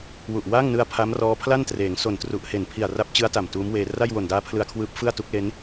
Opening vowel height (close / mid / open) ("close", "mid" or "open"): close